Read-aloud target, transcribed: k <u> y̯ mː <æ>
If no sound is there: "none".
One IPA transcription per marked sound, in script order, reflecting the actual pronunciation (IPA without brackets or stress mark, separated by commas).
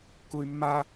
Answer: u, a